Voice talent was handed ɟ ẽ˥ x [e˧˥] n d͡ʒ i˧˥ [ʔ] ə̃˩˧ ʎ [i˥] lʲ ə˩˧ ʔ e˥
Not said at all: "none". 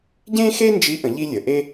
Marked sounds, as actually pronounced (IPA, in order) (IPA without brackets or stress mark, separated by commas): e˥, ʔ, i˥